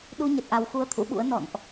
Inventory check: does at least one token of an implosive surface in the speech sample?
yes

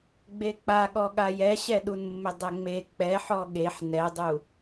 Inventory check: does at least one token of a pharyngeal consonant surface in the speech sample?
yes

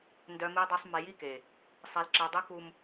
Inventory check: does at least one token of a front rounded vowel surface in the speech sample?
yes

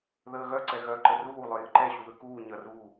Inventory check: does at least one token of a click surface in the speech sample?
yes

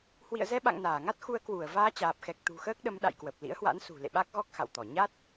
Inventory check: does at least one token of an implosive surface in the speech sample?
yes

